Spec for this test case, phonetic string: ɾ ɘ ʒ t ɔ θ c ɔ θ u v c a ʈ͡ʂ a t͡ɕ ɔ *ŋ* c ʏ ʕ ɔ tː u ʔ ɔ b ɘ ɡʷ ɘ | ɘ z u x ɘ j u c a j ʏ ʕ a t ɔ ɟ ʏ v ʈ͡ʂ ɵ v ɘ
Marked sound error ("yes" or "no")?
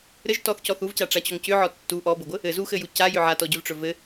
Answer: no